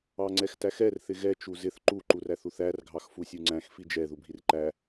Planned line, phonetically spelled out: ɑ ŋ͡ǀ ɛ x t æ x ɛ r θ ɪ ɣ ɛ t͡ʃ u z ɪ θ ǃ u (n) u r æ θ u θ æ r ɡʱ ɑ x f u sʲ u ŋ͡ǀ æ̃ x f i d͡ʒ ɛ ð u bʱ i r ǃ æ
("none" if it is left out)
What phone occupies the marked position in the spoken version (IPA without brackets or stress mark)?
ǃ